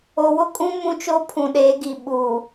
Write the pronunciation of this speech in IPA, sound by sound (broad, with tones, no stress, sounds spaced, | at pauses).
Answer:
o˨ w ʊ˦ kʼ ũ˦ m ũ˦ t͡ʃ o˦ pʰ ũ˨ ɗ eː˨˦ ɡ i˨ ɓ uː˨